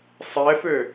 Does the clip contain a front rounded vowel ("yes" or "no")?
yes